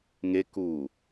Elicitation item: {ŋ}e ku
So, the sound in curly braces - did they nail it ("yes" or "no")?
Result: yes